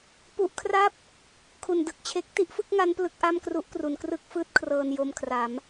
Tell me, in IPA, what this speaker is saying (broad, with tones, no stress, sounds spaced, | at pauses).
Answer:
p u˦˥ ʔ kʰ r a˥˩ p̚ | kʰ u˨˩ n d ɯ˨˩ k̚ t͡ɕʰ e˦˥ k̚ t i˥˩ ʔ f ɯ˥˩ k̚ ŋ a˦˥ n p l ɯ˦˥ k̚ ʔ a˥˩ m k r u˦˥ ʔ k r u˩˦ n k r ɯ˥˩ k̚ f ɯː˥˩ t̚ kʰ r ɤː˧ n j o˧ m kʰ r a˩˦ m